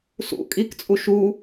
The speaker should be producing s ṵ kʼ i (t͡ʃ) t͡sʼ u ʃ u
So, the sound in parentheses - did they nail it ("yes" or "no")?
no